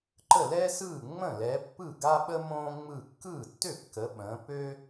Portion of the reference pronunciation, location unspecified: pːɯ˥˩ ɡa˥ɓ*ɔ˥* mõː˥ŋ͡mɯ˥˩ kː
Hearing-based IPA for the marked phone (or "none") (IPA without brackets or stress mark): ə˥